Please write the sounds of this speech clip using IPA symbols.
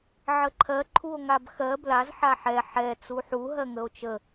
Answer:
ʕ ə ǃʰ ɜ ǃʰ u o̯ ŋ a b x ɜ b l a z ħ a ħ ɛ ħ ɛ t͡s u ħ u ɦ ɜ ŋ ə o̯ t͡ʃ ə

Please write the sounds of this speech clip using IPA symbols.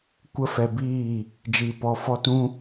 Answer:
kʷ ə˦ f ɛ˧ b iː˦˨ | d͡ʒ iː˧ p ɔ˧ f ɔ˦ t ũ˦

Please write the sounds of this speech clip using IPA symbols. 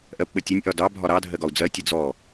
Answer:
ʔ ɜ p ɓ ə tʲ ə nʲ ʔ ɒ d ɑ bʱ ɒ ɾ ɑ dʱ ɜ ɡ ɒ u̯ d͡z ɜ tʲ ə d͡z ɔ

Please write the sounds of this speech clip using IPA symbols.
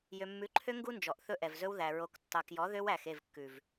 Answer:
j ø˨ mː ʉ˨˦ ǃʰ ø˦ ŋ ɡ u˦ n d͡ʒ ɔ˨ ʔ θ ɵ˦ ʔ ɛ˨ v z ɵ˦ w ð æ˨ ɹ o˨ k tː ɑ˨ k j ɔ˨˦ ð ø˦ w æ˨ x e˦˨ v kː ʉ˨ v

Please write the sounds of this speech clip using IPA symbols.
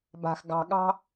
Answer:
b a̤˨ x ɡ ɑ̤˨ ɠ ɑ̤˦

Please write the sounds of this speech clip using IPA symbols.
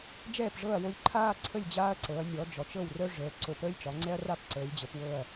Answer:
d͡ʒ ɛː˦˨ p ʐ ɤ˦˨ ɐ̯ w o˦˨ lʲ ǃʰ aː˦ ǀʰ ə˦˨ lʲ d͡ʑ aː˦ ɐ̯ ǀ ɤ˩˧ ɐ̯ nʲ ɔ˩˧ d͡ʒ ɔ˩˧ t͡ʃ ɤ˦˨ w r œ˦ ʐ əː˩˧ ǀ o˩˧ p əː˦ lʲ t͡ʃ ɒ˩˧ ŋ͡ǀ ɛ˦ ɐ̯ r a˦ p ǀ əː˩˧ lʲ d͡ʑ ə˩˧ p w ɤ˦˨ ɐ̯

